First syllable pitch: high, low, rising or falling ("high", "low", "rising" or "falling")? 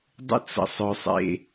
high